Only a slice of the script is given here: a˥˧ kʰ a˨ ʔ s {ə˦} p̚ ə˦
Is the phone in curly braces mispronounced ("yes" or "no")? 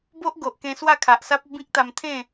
yes